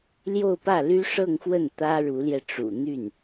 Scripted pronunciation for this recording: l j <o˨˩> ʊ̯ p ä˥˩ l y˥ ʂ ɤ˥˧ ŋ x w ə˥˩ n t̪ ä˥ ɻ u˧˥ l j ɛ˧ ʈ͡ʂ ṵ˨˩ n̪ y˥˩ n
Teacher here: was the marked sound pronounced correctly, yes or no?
no